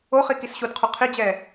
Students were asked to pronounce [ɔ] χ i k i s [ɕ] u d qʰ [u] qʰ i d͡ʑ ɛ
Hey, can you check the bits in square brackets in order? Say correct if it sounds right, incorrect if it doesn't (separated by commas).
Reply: incorrect, correct, correct